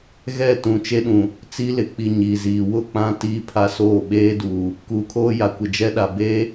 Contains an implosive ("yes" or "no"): yes